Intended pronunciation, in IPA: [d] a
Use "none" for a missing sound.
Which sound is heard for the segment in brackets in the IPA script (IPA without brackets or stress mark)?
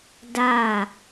d